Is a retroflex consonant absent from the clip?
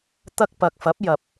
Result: yes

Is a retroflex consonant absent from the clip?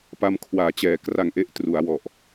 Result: yes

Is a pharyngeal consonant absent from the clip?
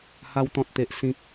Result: yes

